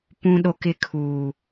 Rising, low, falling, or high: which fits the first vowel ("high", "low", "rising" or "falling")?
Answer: high